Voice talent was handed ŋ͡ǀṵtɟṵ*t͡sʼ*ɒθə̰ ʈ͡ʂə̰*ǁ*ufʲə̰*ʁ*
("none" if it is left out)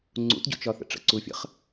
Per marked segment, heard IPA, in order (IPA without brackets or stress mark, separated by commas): t͡ʃ, ǀ, χ